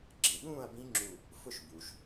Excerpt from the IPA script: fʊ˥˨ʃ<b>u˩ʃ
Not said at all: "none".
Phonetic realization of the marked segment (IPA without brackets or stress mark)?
b